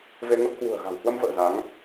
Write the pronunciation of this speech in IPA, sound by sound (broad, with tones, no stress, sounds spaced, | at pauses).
v e˧ ŋ ə˦˥ p̚ h w ṳ˨˩ ə̯ ɣ a̤˨˩ w h w ə˧ m v ə̰ː˧˨ z a˨˦ ŋ